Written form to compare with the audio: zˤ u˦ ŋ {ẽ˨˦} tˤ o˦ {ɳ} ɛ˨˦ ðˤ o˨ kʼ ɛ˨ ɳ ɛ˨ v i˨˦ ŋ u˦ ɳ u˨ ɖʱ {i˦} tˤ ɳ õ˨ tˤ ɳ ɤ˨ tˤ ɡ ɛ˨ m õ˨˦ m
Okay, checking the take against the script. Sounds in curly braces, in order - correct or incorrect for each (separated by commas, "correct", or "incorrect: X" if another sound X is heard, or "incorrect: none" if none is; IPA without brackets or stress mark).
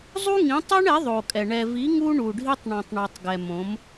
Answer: incorrect: ĩ˨˦, correct, correct